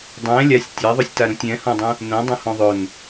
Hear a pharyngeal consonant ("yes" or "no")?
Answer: no